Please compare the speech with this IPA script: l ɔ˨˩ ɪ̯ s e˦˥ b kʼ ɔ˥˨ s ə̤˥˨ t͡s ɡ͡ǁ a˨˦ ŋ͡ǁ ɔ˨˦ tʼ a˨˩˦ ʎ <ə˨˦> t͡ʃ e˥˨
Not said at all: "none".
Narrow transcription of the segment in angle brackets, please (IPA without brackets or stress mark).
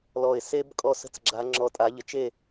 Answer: ə˨˦